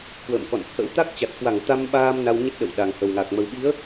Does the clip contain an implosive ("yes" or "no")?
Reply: yes